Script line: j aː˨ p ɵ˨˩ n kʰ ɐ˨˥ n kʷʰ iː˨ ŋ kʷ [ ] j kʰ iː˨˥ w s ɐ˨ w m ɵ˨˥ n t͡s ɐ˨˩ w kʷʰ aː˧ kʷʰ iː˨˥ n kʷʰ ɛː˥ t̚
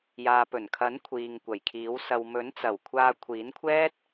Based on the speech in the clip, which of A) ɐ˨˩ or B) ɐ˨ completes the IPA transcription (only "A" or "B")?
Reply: A